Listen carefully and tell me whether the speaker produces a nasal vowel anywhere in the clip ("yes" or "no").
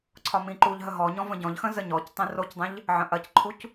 yes